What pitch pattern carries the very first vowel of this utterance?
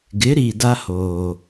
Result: rising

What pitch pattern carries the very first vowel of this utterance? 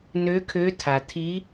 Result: rising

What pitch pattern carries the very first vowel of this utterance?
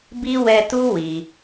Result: high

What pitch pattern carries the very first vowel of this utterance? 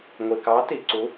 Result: low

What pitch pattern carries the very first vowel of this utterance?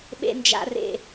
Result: high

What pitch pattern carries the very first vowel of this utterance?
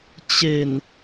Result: low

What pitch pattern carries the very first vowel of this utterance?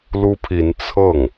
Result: high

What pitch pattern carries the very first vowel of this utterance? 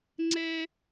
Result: high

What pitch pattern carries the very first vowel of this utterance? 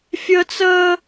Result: high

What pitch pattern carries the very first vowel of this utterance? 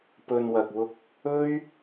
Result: low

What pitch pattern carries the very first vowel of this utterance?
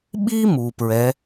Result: high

